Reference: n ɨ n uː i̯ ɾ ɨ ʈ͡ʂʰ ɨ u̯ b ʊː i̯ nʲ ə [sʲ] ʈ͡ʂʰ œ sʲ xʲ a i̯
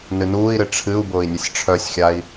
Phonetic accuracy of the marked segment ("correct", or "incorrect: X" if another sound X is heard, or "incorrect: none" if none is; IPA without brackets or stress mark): correct